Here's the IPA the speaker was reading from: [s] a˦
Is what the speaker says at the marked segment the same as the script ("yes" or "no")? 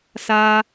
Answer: yes